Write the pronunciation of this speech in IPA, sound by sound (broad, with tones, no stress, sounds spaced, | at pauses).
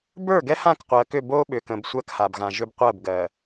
b ə˞˦˨ ɡ ɛ˦ h ã˦˨ k qʷ ɜ˨ k ʏ˦˨ b o˦ ɓ ʏ˨ k ə̃˨ b sʷ ɜ˦ k h a˨ b ɣ ã˨ ʒ ʏ˦ b qʷ ɜ˦˨ b ɡ ɜ˨